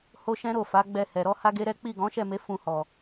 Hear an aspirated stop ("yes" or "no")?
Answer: no